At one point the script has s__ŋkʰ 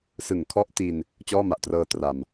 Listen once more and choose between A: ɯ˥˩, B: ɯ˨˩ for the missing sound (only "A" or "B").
B